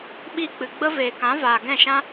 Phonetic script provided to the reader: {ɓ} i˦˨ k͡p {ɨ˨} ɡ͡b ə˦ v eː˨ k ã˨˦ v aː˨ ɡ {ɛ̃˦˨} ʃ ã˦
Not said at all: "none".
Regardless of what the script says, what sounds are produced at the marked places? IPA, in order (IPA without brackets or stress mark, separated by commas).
ɓ, ɨ˨, ɛ̃˦˨